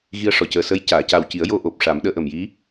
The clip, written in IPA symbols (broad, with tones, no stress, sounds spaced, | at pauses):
ɣ i˧ ə̯ ʂ ɔ˨˩ c əː˨˩ s ə˧˥ j c aː˨˩˨ c a˨˩ w c i˨˩˦ ə̯ j o˧ ʔ o˨˩ p̚ ʂ a˨˩˦ m ɗ əː˧ ʔ ə˨˩ m j i˧˥